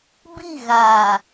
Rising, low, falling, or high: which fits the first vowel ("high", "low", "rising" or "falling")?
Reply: falling